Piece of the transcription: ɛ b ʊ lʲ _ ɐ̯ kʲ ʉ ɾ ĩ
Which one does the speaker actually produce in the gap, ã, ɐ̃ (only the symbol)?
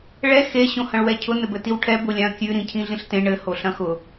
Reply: ã